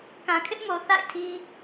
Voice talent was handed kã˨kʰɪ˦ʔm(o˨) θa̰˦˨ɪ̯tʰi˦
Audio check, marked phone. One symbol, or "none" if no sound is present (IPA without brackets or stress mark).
o˨